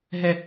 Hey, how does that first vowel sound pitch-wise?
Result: high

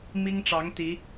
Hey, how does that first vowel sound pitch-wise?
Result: high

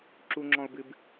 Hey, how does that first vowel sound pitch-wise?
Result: high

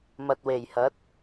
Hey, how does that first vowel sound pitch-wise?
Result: low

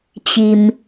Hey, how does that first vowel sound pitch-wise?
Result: low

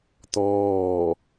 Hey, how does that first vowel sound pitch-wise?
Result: falling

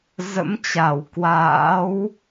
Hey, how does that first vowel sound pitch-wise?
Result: rising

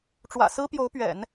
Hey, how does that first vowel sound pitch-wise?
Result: low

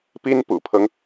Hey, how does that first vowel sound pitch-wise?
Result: high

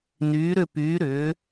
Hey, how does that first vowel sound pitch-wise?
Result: rising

